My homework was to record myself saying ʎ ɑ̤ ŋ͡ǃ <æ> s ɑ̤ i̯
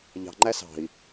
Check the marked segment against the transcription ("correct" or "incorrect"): correct